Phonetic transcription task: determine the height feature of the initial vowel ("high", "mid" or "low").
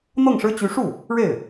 mid